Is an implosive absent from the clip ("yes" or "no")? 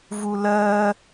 yes